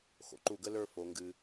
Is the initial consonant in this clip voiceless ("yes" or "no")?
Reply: yes